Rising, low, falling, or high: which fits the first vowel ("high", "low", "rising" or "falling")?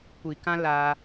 low